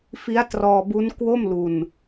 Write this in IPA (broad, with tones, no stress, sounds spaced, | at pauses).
f i˦˥ a̯ t r ɔː˧ b u˦˥ n k w o˥˩ m l u˧ n